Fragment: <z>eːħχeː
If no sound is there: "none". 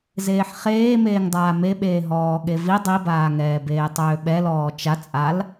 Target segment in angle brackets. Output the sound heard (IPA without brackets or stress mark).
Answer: z